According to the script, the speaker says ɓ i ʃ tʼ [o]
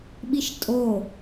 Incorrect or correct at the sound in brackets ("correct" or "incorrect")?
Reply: correct